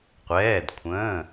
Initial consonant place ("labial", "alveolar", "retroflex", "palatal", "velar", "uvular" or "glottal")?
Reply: uvular